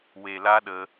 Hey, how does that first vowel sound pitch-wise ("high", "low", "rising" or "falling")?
low